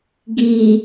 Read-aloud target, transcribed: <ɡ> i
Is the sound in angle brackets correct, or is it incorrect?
correct